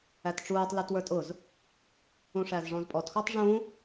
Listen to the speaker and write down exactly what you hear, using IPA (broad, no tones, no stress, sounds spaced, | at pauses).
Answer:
æ t ʈ͡ʂ uː tˤ l ə˞ t w ə˞ tʼ ʊ z | ũ ʂ æ z ʐ ɔ̃ z pʼ ɔ t x ɔ tˤ ʐ ũ